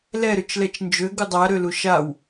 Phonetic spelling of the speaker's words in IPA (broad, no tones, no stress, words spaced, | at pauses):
lɛɾøt͡ʃlɛt͡ʃ nd͡ʒøɡu dˤaɾølu ʃaw